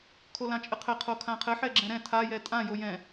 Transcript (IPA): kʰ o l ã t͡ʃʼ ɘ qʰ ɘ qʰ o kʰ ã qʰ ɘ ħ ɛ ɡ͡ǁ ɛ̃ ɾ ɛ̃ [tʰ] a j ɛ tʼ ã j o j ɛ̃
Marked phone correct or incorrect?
correct